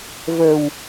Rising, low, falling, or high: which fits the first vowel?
low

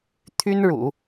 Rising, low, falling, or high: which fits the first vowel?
high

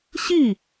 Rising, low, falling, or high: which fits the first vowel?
falling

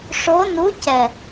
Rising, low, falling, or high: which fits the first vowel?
rising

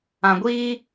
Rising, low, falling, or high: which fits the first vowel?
low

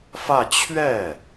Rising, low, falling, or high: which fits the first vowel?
falling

